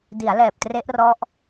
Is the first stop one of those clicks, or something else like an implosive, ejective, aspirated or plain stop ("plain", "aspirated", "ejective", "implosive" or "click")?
plain